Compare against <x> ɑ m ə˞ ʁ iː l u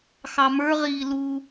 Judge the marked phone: correct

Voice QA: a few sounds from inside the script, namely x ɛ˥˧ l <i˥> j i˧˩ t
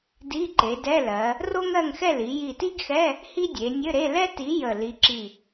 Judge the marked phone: incorrect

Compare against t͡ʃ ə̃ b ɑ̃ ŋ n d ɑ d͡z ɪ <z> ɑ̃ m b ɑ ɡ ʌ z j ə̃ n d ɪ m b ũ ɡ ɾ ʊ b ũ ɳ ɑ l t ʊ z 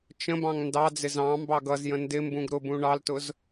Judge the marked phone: correct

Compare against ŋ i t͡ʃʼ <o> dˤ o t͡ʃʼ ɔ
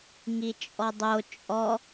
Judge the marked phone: incorrect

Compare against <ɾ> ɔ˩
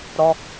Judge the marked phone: correct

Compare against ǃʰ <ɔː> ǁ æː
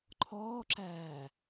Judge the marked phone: correct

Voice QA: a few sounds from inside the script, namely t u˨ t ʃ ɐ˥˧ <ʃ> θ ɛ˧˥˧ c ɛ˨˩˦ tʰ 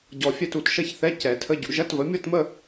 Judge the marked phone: incorrect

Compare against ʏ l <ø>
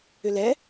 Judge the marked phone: incorrect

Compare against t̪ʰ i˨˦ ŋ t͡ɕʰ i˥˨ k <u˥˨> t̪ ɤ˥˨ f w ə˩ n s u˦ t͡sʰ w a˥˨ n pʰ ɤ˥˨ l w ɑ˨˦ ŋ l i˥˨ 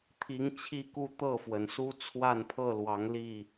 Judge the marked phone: correct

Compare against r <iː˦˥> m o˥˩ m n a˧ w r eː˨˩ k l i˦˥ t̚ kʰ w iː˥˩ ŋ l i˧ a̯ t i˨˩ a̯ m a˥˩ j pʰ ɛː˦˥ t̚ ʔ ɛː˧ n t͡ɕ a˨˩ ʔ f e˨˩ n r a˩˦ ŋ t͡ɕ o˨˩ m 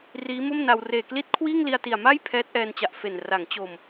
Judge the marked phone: correct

